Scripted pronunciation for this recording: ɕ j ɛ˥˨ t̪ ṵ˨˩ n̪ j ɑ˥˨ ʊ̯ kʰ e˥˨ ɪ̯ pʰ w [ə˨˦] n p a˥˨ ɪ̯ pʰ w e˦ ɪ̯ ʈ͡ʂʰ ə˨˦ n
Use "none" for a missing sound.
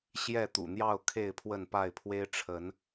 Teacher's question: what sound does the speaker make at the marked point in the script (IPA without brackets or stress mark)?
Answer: ə˥˨